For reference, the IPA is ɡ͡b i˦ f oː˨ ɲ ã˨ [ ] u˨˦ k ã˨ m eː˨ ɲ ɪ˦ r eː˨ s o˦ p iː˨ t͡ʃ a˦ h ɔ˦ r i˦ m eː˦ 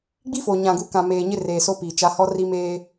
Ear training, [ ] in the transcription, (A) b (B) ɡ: B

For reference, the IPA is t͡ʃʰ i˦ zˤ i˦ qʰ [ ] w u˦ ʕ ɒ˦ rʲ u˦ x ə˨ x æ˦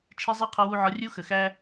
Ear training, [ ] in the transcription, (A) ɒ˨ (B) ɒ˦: B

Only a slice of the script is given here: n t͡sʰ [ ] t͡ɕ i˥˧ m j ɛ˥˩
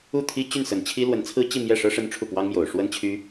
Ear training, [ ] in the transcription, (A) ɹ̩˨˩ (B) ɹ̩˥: B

